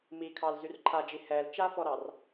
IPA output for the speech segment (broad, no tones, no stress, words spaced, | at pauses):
mikʰɑl zyrǃʰad͡ʒi hɛl t͡ʃafɔɾɑr